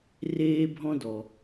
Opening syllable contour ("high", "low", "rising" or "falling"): high